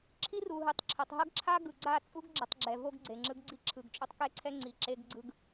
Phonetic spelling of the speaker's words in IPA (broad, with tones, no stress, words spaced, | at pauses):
ǁʰi˦ru˨ɦɯ˨tˤ ǁʰʌ˨tˤɦʌ˦ɡǁʰa˦ ɡɯ˨ɡ͡ǀa˦˨ t͡sʼu˦ɡɡ͡ǁʌ˨tˤ ɡ͡ǁɛ˨vo˦ɡ ɡ͡ǀe˨ŋ͡ǁɯ˦ɡɡ͡ǀi˦ ǁʰɯ˨ɡt͡ʃʼo˦tˤ kɛ˦ǀʰɛ˦ŋ͡ǀi˨ ǁe˦ɡ ɡ͡ǀɯ˦ɡ